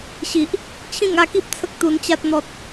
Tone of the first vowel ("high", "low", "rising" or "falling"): low